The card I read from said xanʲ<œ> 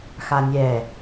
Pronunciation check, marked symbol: incorrect: ɛ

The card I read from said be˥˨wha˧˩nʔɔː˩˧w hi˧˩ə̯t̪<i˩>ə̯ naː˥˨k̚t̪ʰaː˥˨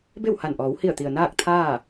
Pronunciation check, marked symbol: correct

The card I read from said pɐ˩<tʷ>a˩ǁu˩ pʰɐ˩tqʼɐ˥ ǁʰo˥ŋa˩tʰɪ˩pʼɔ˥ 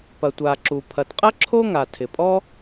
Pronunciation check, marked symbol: correct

